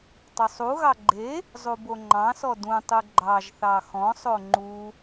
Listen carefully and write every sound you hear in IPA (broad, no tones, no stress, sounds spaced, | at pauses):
tˤ ʊ sˤ u ɣ ɑ ɡ͡ǃ e | zˤ u b o ŋ͡ǃ ɑ̃ s ɔ d ũ tˤ u ɡ͡ǃ ɑ ʒ θ ɑ x ɔ̃ sˤ o ŋ͡ǃ u